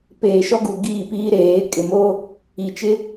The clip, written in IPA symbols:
p eː˨ ʃ ɔ˦ ɡ u˨ ɡ iː˦˨ p iː˦ ɾ eː˨˦ kʼ ɪ˨ m o˦ | i˨ t͡ʃ ɪ˦

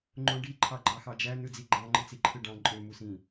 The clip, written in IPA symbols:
ŋ͡ǃ õ ɖ i ǃʰ ɑ ɡ͡ǃ ɑ x ɑ d͡ʒ æ n ɯ d͡z i ɡ͡ǃ ɑ̃ ŋ͡ǃ ɯ t͡s i ǃʰ ɯ ɖ ɑ̃ ǃʼ ø m u s ĩ

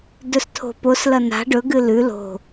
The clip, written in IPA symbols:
d ɵ s tʰ o̤ p o s l ɐ n a̤ ɖ ɵ ɡ ɨ l ʉ l o̤

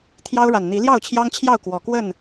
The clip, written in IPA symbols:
t̪ʰ j ɑ˦ ʊ̯ ɻ a˨˩ n n̪ i˨˦ l j ɑ˥˨ ʊ̯ t͡ɕʰ j ɑ˦ ŋ t͡ɕʰ j ɑ˥˨ ʊ̯ k w ɔ˨˩ k w ə˥˨ n

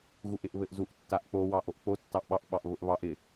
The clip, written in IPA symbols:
ɣ u ʔ ɪ ʔ β ɘ ʔ z u ʔ tː a ʔ k͡p o w ɑ ʔ o ʔ k͡p o tː ɑ ʔ ɓ ɑ ʔ ɓ ɑ ʔ β ʊ ʔ β ɑ ʔ ɪ

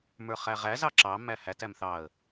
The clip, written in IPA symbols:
m ə˞ χ æ ʁ æ z ɑ ǁ ɑ m æ h æ t æ m θ ɑ ə̯

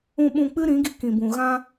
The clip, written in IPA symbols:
ũ˨ ɓ ũ˨ k͡p ɨ˦ ɾ ĩ˨˦ ɡ i˧ k ĩ˨ b ũ˨ ɣ ã˧

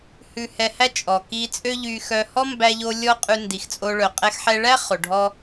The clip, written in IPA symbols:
h ʉ˧ h ɛ˧ h æ˥ t͡ʃʼ ɔ˩ k i˧ t͡sʼ ø˥ ʎ y˧ x œ˧ h ɔ˥ m b æ˧ ʎ o˧ lʲ ɔ˥ qʼ ʉ˧ n d i˩ x t͡sʼ o˧ ɭ œ˩ qʼ ɛ˧ x ħ ɛ˧ ɭ æ˥ χ o˩ ɖʱ ɔ˧

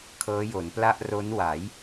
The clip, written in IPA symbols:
kʰ ɤː˦˥ j o˩˦ n p l a˥˩ ʔ r o˦˥ n w a˩˦ j

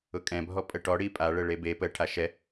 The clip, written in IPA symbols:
ʊ kʼ ɛ̃ bʱ ɔ pʼ ə ʈ ɔ ɽ i pʼ a ɭ ə ɭ e b e p ə ʈʰ a ʃ ɛ

